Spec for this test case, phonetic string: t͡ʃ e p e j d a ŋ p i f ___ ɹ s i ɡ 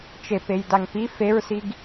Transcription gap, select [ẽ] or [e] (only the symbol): e